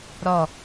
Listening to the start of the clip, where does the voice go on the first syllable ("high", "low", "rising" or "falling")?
falling